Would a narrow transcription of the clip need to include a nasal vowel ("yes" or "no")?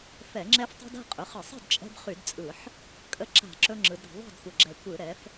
no